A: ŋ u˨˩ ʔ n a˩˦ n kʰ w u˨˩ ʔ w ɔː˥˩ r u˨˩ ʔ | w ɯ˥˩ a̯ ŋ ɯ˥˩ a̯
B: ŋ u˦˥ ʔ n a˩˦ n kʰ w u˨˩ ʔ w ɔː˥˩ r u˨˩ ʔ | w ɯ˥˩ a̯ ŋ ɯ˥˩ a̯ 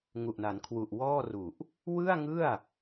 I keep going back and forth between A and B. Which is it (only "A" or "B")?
A